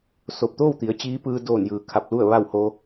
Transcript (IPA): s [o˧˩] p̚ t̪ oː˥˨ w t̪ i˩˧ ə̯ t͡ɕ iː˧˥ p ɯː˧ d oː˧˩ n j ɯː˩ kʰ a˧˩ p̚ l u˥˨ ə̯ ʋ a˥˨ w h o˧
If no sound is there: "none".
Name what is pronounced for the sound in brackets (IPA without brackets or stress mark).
o˧˩